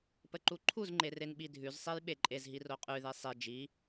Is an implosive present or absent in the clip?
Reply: present